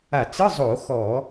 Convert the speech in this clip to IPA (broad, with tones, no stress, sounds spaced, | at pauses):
a˧˩˧ t͡s ɯ˧˥˧ zˤ o˧˩˧ x ɔ˧˩˧